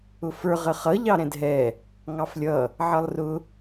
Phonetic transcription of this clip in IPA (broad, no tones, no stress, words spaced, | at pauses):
ʊfə˞ ʁəχʌ ʎɑɾɛ̃dɦɛ | ŋɑflʲʌ | ʕʌlˠrʊ